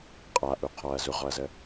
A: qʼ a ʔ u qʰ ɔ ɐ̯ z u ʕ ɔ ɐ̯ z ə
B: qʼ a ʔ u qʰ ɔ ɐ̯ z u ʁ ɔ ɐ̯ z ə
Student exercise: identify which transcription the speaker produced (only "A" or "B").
B